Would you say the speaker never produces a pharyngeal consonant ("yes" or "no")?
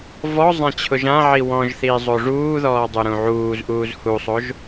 no